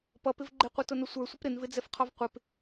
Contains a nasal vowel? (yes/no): no